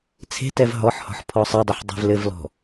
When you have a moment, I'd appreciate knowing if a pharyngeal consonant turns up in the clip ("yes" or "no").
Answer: yes